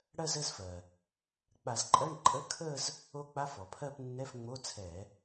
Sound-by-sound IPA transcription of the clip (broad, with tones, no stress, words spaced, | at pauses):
ɽɜ˥˧zə˧˥˧zfɜ˩ | k͡pa˧˩˧zǃʼɜ˧˥˧ɳ ǃʼə˧˥˧kʰə˥˧z | o˦˥k͡pa˧˥˧fɔ˩pʰɜ˥˧p nːɛ˧˥˧fŋ͡mo˧˥˧t͡sʰɛ˧˩˧